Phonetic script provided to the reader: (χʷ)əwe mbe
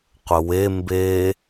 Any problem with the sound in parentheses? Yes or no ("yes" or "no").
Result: yes